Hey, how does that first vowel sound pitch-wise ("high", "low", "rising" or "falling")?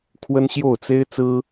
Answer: high